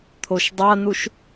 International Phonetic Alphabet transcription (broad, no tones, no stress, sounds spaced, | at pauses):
t̪ʰ o ʃ dˤ a n̪ u ʃ